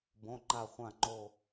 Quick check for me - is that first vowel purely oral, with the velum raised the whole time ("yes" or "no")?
no